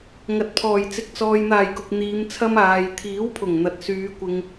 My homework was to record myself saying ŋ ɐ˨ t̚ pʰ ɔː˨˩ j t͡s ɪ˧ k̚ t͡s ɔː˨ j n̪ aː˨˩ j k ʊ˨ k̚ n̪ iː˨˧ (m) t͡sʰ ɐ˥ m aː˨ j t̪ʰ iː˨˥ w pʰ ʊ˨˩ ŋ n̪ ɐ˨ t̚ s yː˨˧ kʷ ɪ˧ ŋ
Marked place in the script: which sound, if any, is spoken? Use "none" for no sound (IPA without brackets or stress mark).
m